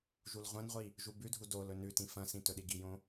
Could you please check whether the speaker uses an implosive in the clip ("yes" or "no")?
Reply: yes